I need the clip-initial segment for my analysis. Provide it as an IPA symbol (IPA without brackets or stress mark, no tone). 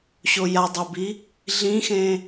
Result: ɕ